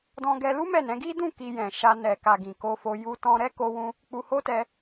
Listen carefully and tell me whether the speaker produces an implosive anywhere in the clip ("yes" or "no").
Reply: no